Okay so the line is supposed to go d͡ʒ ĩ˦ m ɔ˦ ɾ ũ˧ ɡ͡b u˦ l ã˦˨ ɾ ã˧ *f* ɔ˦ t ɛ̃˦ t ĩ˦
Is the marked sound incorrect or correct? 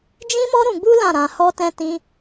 incorrect